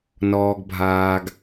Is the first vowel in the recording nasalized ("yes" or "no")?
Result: no